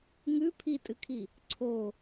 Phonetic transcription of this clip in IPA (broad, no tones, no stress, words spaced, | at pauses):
ŋʉ pʰitʼɨkʰi | ǀʰo